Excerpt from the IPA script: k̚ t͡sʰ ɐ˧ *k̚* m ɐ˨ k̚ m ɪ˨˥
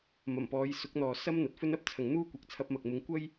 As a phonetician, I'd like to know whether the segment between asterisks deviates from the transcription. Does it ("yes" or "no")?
yes